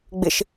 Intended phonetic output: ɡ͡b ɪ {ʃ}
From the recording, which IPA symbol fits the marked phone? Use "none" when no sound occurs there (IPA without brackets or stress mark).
ʃ